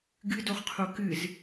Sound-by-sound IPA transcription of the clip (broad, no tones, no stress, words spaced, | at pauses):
ɡɨdoχqʰo kɨz